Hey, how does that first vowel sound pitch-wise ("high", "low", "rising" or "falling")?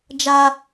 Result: high